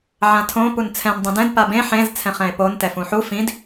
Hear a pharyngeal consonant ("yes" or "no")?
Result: yes